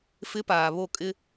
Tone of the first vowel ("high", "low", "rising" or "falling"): high